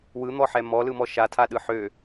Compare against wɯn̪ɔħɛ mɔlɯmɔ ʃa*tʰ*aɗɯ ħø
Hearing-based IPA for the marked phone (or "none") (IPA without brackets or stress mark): tʰ